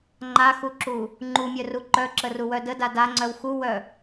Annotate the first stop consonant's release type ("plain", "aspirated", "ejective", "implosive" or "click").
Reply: click